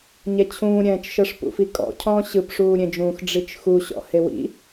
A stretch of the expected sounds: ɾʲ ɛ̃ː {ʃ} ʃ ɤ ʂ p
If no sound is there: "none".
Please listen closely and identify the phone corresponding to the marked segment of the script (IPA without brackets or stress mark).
t͡ʃ